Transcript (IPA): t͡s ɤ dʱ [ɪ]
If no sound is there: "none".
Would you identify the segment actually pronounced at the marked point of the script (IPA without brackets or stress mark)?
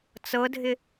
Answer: ɪ